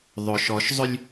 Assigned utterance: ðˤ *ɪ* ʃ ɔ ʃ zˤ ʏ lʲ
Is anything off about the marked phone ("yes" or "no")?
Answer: yes